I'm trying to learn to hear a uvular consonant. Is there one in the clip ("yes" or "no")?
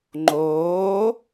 no